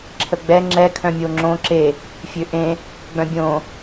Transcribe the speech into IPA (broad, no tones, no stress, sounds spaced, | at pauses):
ǁʰ ə ɡ͡b ɛ ŋ͡ǁ ɛ kʰ œ̃ mʲ o ŋ͡ǁ õ ǁ e | fʲ ø ʔ ẽ | ɡ͡b œ̃ bʲ õ